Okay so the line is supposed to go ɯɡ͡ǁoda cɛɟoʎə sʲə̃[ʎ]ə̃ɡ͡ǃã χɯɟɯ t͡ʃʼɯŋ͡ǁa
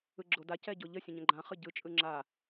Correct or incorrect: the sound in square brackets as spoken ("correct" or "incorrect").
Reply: incorrect